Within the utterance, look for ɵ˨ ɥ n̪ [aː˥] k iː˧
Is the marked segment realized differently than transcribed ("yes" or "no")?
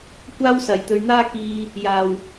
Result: no